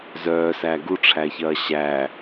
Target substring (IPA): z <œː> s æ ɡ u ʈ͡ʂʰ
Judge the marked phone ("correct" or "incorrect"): correct